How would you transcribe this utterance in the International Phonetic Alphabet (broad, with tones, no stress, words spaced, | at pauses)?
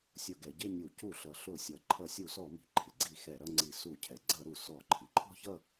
sʲʊ˧˩˧ɡɛ˩˧ ɟɪ˥˧nʲu˧˩˧ cu˧˩˧ɬʌ˩˧ ɬʊ˧˩˧sʲʌ˩˧ ǃʰʌ˧˩˧sʲu˧˩˧sɔ˧˩˧ mi̤˩ ǃʰɪ˩ɡ͡ǀi˧˩˧ xɛ˧˩˧ɾʌ˥˧ŋ͡ǀi˧˩˧ su˧˩˧cʰɛ˩ ɡ͡ǀʌ˧˩˧ɾu˩ sɔ˧˩˧ ǃʰi˩ǃʰɔ̤˥˧çʌ˥˧